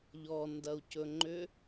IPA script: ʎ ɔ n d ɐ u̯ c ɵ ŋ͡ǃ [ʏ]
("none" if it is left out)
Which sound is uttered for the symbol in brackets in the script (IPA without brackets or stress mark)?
ʏ